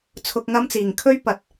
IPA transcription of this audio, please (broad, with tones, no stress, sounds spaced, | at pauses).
t͡sʰ ʊ˨ k̚ ŋ ɐ˧ m t͡s iː˨˩ ŋ kʰ ɵ˥ ɥ p ɐ˨ t̚